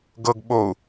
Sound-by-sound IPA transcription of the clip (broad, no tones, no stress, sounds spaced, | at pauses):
ɡ ɤ ɡ ɓ o u̯